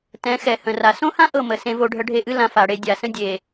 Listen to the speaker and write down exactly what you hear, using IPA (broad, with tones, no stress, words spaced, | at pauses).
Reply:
tɛ̃˨˦xɛ˨ hə̃˨ra˨ sõ˦hã˦ ʔɤ˦˨mə˨sẽ˧ vo˧ɖʱə˧ɖʱe˧ʔɨ˦ lã˧fa˨ɽe˧ dʲa˨sə̃˦ dʲe˨